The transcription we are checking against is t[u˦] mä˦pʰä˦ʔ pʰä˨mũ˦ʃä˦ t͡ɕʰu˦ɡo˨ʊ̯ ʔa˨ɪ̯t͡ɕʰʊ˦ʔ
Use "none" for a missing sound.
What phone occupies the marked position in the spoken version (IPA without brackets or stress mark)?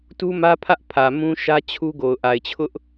u˦